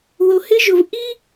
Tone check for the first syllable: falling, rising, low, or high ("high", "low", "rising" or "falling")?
low